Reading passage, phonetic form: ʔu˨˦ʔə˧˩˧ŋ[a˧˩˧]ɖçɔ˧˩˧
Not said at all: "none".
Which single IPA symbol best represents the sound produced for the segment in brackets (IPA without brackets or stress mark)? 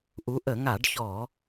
a˧˩˧